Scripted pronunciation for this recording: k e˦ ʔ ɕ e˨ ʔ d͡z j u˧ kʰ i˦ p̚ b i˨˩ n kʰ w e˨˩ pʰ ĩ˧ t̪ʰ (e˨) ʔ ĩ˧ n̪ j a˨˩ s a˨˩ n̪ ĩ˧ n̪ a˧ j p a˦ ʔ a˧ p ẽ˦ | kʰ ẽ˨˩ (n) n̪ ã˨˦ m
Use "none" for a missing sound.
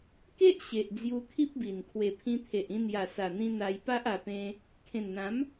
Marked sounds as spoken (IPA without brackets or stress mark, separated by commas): e˨, n